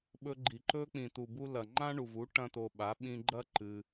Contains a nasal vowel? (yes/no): yes